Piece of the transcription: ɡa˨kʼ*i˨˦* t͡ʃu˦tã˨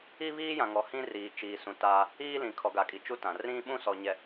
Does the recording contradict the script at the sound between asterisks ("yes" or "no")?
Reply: yes